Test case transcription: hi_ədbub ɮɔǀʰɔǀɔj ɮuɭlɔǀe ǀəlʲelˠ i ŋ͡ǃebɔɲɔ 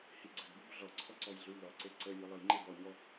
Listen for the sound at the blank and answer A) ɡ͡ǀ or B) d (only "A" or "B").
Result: A